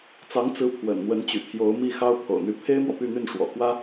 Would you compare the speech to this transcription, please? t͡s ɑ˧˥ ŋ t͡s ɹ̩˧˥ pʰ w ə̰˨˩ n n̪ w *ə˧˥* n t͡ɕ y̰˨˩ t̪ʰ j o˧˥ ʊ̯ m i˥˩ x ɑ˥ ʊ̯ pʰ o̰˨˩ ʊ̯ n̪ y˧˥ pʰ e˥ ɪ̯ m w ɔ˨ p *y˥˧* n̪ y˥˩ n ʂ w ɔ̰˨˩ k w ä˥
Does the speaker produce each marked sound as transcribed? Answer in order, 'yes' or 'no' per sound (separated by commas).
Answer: yes, yes